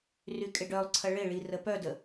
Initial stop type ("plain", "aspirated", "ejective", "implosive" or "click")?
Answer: ejective